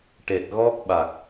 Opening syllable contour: low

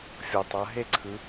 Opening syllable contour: low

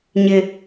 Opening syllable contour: high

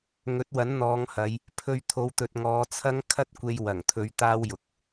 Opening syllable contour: rising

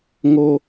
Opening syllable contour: high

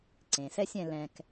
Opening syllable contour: low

